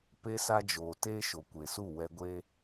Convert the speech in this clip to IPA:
p e˦ s a˦ d͡ʒ oː˨ t eː˦ ʃ o˨ kʷ e˨ s u˦˨ w ɛ˧ ɡʷ e˦

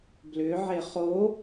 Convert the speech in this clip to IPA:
b l ʏ ʕ e χ o

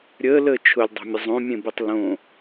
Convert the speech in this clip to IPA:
ɾʲ əː l əː t͡ʃʰ ʊ lʲ dˤ o̤ mʲ ə zˤ õ mʲ ẽ b e tˤ l õ

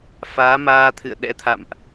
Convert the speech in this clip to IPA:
f aː˨˦ m aː˧ t̪ʰ ɨ̰˧˨ ə̯ ɗ ɛ̰˧˥ t̪ʰ a̰˧˨ m ʔ

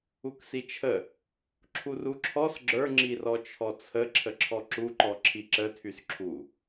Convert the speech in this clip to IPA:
u k s i t͡ʃʰ ə | ǁʰ u r u ǁʰ ɔ s ɡ͡ǁ ə˞ ŋ͡ǁ i r ɔ t͡ʃʰ ɔ t͡sʰ ə ǁʰ ə ǁʰ ɔ ǁ u ǃ ɔ ǁʰ i ǁ ə tʰ y s ǁʰ u

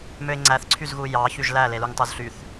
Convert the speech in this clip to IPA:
m ø ɪ̯ ŋ͡ǀ æ θ ǀʰ y z ɣ u j ɑ ç y ʒ l æ l e l u ŋ tˤ u z ɬ y θ

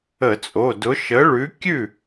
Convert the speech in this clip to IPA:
ə˧˩˧ t͡sʼ o˩˧˩ d ʊ˨˥ ʃ ə˨˥ ɭ ʉ˨˥ kʲ ʉ˥˩

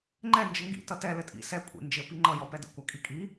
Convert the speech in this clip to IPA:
ŋ͡ǃ ɛ n d͡ʒ ə ŋ ɡ ḭ t ʌ t ɛ l ɘ tʼ ḭ s ɛ kʷʼ ḭ n d͡ʒ ɘ p i ŋ͡ǃ ʌ j ɔ p ɛ d ə̰ kʷ a kʼ i kʼ i

